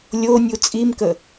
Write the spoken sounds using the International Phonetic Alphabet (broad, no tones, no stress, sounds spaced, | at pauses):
lʲ o nʲ u t͡sʼ i m k ə